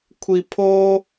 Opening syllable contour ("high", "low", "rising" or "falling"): low